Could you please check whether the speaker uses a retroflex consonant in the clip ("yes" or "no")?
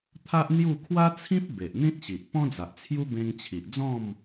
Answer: no